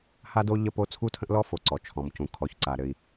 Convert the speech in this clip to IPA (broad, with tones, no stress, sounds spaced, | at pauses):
h a˦ d o˦ ʎ ə˦ p o˦ t͡sʰ u˦ tʰ ə̃˦ ʔ l ɔ˦ f o˨ ǀ ɔ˨ t͡ʃʰ ɔ̃˨ m c ũ˨ kʰ ɔ˨ ç ǀ a˨ ɾ ɘ˦ i̯